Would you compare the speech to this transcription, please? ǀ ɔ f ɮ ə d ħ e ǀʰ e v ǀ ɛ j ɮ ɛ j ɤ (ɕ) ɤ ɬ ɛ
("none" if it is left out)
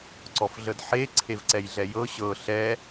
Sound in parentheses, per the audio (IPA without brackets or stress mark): ɕ